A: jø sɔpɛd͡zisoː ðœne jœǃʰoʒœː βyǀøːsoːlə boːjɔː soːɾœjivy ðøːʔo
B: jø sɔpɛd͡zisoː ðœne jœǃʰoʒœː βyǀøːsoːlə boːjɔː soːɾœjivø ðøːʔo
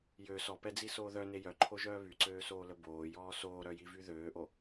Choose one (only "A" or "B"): A